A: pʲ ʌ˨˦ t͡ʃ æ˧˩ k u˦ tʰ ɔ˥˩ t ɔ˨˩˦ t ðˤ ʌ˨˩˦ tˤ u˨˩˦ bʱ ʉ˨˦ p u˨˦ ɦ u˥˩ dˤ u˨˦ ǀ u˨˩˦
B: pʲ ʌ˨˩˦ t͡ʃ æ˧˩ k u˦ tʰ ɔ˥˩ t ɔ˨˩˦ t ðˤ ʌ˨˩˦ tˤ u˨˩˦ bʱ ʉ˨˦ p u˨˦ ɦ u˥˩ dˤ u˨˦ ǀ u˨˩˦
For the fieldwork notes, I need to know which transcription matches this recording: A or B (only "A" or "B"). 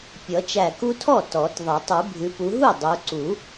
B